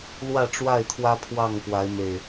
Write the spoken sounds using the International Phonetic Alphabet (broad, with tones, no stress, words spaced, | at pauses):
lwä˥˨ʈ͡ʂwa˥˨ɪ̯t̪ʰwä˦ pʰwɑ˥˨ŋkwa˨˦ɪ̯me˨˩ɪ̯